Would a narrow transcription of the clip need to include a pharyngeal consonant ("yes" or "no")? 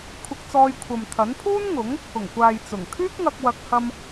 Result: no